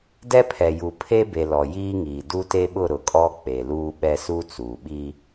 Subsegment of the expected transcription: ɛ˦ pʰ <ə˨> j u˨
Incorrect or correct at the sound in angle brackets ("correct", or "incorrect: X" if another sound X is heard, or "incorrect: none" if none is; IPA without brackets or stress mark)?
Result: incorrect: ɛ˨